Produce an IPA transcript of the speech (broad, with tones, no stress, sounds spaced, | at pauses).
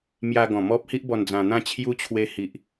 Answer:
m j a˧ ɡ ɔ̃˨˩ m ɔ˦ p̚ h i˦ ʔ b ɔ˧ n d͡z ã˧ n̪ ã˥˧ t͡ɕʰ j u˦ t͡ɕʰ w e˧ h i˨ ʔ